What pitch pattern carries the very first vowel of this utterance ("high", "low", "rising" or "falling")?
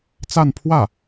falling